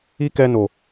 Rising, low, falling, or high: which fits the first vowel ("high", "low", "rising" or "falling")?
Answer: high